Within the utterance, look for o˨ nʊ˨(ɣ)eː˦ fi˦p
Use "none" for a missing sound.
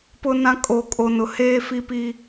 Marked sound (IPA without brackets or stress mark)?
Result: h